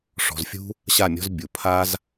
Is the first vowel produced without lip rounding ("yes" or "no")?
no